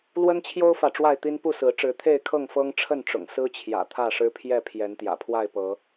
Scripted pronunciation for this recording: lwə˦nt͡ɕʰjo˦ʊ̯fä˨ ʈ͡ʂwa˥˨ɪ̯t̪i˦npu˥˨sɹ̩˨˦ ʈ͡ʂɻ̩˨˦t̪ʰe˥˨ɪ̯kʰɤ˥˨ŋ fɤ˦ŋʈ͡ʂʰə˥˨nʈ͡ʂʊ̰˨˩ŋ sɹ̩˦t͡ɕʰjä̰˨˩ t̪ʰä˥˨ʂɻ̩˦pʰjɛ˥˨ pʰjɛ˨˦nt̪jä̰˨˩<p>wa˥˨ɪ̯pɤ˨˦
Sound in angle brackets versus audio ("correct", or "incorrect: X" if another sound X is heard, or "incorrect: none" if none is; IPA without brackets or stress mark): incorrect: pʰ